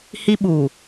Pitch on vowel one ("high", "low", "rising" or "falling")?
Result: high